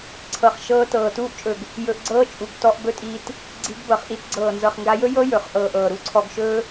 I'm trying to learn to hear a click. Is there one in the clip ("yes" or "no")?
yes